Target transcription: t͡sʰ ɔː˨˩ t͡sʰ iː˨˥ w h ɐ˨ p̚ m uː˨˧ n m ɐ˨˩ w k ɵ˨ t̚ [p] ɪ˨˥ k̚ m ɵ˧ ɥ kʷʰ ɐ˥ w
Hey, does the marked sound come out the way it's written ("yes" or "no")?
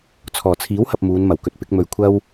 yes